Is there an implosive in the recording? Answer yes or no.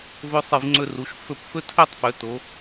no